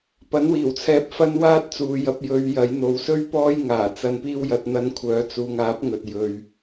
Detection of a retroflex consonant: absent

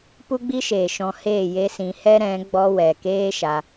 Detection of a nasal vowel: present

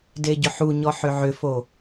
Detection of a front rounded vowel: present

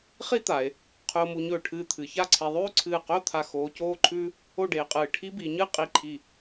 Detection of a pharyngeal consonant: absent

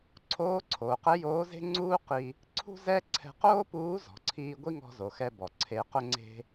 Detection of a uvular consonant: present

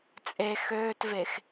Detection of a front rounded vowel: present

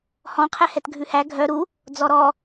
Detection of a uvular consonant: present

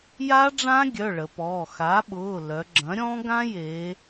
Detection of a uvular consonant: absent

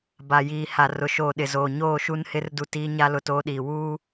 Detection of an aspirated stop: absent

